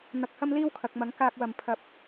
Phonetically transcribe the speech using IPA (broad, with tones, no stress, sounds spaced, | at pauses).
n̪ ɐ˨ k̚ h ɐ˥ m l iː˥ w kʰ ɐ˨ k̚ m ɐ˨˥ ŋ k aː˨ k̚ w ɐ˨˩ m pʰ ɐ˨ p̚